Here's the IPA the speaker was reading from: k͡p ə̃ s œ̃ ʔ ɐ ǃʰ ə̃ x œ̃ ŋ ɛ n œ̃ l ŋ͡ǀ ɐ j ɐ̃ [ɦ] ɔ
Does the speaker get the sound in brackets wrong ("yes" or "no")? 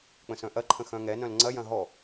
no